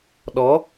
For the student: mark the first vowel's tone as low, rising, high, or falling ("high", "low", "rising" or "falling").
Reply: rising